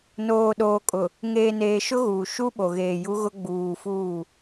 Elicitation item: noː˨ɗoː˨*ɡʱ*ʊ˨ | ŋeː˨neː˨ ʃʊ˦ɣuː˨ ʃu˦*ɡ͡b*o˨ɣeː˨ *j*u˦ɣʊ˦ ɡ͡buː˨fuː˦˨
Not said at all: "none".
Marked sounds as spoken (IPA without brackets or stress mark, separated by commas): kʼ, ɓ, j